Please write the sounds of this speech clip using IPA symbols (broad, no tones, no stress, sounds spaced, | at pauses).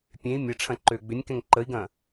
pʲ ẽ i̯ mʲ ɐ ʈ͡ʂʰ ɐ̃ ǃ øː ɡ͡b ʏ nʲ k ɛ̃ ŋ ǃ ə i̯ ɡ ɐ̃ː